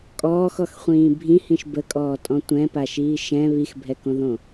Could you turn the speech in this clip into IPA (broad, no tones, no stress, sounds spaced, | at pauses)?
kʼ ɔː x ɔ x χʷ ĩː bʱ ĩ h ĩ ʃ b ə kʼ ɔː tʼ ɔ̃ tʷ ɛ̃ p a ʃ iː ʃ ɛ̃ β i x bʱ ɛ k õ ð õ